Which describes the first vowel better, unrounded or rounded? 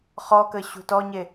rounded